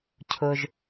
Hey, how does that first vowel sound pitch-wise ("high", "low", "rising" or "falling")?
low